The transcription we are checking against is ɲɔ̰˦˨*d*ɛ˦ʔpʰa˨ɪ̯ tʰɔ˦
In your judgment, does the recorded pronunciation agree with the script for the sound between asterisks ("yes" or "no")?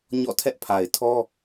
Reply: no